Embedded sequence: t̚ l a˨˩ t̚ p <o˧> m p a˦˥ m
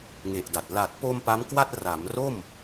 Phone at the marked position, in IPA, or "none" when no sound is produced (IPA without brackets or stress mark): o˧